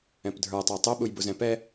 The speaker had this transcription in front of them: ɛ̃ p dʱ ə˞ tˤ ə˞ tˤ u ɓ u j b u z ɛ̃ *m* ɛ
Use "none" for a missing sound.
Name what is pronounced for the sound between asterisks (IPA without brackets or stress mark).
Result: p